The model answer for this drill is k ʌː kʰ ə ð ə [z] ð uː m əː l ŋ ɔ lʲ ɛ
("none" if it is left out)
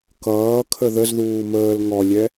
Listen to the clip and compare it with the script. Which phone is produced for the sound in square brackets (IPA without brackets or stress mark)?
z